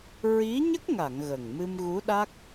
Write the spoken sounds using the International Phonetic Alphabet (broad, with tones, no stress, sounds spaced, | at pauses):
ɹ i˧˥ ɲ ə˦˥ k̚ ŋ a˨˩˨ ŋ ɣ ə˨˩ ŋ m ɨ˧ m ɣ u˧˥ ɗ a˦˥ k̚